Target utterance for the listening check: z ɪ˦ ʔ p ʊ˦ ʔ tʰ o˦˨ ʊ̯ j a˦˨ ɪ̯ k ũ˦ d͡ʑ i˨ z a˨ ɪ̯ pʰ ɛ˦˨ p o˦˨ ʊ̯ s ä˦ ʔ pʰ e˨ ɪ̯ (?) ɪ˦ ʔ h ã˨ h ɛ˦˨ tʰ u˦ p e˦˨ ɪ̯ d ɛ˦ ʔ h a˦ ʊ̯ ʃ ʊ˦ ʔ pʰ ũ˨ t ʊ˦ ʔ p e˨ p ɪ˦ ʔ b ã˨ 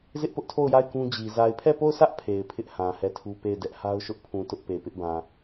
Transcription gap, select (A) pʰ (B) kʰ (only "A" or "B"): A